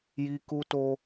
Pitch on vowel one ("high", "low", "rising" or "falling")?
high